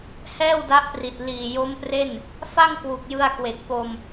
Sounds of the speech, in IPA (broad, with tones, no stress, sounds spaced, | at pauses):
h ɛː˥˩ w d a˦˥ ʔ p r i˨˩ t̚ l iː˨˩ j o˦˥ m p r e˥˩ n | f a˥˩ ŋ k w u˨˩ k̚ j ɯ˧ a̯ k w e˨˩ k̚ p o˧ m